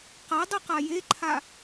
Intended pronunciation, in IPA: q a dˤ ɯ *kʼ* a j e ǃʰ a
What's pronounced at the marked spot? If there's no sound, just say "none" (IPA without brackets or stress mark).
q